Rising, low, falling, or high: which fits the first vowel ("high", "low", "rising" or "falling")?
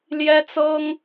high